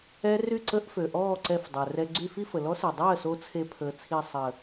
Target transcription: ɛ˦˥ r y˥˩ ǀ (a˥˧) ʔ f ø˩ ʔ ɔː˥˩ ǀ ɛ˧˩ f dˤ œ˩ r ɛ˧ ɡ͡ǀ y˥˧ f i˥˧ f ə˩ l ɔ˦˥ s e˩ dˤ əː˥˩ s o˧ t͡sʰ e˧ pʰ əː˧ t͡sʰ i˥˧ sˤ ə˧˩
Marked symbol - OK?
no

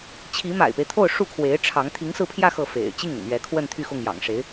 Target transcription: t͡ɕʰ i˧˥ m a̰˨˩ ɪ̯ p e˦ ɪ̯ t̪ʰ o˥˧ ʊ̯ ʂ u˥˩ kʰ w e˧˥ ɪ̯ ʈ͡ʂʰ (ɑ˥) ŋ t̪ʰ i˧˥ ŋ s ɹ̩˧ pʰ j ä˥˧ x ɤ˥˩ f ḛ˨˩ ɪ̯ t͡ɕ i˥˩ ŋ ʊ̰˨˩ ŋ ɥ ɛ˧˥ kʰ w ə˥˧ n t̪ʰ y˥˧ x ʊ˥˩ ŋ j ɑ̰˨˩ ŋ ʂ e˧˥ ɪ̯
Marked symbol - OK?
no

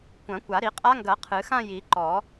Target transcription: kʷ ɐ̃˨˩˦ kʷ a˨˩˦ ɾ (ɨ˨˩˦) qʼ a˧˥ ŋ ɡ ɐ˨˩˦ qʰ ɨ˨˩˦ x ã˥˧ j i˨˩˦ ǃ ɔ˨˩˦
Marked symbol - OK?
no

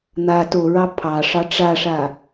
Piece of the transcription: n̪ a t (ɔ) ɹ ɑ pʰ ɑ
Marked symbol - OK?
no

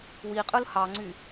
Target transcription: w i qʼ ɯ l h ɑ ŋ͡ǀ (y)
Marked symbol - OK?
yes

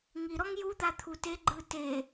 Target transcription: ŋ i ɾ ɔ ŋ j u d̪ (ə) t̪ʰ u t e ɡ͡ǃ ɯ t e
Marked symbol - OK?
no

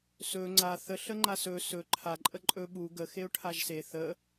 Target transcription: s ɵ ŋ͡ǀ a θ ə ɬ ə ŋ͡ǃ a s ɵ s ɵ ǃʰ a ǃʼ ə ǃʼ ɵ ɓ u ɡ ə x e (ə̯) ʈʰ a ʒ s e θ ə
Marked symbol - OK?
no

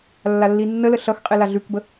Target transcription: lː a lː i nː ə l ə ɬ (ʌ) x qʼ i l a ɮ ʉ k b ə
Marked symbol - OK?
yes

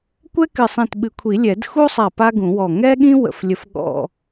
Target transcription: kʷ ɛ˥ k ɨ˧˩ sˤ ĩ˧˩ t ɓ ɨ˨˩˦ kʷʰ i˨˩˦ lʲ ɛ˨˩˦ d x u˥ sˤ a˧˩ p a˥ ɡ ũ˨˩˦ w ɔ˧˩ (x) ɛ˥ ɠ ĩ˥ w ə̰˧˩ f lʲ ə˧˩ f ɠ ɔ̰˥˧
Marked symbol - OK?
no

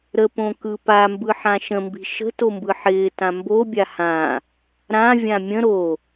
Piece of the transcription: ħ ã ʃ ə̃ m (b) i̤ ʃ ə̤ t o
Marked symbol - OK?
yes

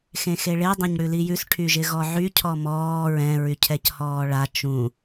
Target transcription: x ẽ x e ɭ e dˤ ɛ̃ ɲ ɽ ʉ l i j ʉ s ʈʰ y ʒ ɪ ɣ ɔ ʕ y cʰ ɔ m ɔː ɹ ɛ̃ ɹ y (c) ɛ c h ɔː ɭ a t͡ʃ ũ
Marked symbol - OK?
no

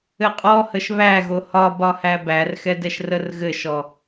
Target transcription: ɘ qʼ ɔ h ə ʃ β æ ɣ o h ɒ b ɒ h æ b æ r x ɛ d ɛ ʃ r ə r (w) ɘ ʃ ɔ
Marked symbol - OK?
no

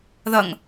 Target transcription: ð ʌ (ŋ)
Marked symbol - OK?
yes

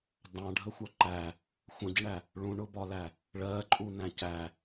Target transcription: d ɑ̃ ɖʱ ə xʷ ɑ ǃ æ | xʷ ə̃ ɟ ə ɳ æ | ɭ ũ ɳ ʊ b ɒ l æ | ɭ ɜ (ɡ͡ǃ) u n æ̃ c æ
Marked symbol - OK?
no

